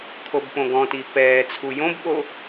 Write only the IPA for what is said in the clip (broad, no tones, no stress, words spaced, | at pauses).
kʰobpõɡɔ̃ti pɛːt͡sʰu jõbɓo